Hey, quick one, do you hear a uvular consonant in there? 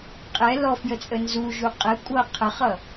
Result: yes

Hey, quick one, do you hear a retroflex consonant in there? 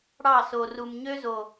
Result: yes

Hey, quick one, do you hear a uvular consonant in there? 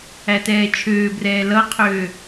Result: yes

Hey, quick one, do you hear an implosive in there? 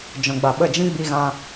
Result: yes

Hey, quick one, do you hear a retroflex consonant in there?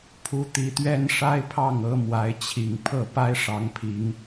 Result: yes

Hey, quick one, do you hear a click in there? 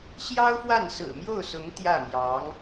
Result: no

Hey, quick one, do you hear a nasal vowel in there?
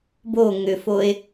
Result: no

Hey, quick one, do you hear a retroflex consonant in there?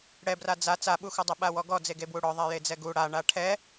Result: yes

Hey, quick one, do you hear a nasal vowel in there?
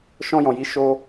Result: yes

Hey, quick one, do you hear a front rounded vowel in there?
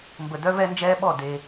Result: yes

